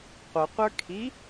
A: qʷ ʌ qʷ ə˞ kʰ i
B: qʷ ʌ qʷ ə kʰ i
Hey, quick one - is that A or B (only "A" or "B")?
A